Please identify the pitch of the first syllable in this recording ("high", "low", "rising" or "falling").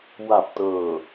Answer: low